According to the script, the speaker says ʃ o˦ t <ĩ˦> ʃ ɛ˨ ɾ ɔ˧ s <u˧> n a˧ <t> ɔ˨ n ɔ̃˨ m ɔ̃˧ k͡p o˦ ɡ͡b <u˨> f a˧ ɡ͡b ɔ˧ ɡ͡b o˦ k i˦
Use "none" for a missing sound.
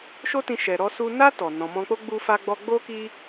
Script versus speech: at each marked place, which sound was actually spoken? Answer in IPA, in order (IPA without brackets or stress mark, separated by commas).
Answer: ĩ˧, u˧, t, u˧